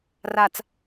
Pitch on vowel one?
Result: low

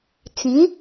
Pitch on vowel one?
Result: rising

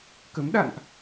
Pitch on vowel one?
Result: rising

